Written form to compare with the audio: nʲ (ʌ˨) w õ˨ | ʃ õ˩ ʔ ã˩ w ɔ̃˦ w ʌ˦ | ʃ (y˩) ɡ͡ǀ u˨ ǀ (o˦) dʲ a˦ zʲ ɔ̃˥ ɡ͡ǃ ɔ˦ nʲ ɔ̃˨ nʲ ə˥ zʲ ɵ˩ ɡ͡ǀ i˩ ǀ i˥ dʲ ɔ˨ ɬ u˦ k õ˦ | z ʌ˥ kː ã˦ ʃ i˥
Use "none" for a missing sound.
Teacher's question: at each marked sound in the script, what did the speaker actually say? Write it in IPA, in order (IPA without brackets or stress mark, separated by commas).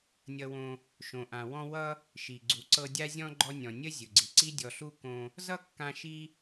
ʌ˨, i˩, ɤ˦